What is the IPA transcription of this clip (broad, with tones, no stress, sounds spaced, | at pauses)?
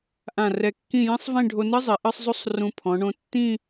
ʔ ã˧˩ r ɛ˧˩ kː ĩ˥˧ j ĩ˥ sˤ v ẽ˥˧ ɖʱ o˧ n ɨ˥ zˤ e˩˧ ʔ ɨ˥˧ sˤ zˤ u˥ sˤ r ũ˧ pʰ ɔ̃˩˧ ɳ õ˧ tː ĩ˥˧